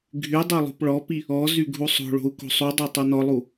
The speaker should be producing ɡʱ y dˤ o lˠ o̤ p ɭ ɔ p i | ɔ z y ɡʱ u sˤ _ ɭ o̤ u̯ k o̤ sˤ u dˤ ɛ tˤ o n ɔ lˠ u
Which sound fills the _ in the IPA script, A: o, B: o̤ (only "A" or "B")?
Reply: B